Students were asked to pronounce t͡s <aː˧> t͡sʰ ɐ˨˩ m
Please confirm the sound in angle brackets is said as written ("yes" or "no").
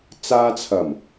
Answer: yes